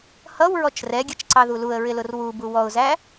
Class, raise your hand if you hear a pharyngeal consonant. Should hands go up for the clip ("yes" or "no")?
no